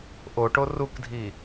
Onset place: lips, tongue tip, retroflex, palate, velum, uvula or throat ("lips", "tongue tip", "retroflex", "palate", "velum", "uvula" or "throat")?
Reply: throat